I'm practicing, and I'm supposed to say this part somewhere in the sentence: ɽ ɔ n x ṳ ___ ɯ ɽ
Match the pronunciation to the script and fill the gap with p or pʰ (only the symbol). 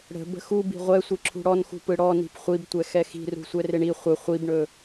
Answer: p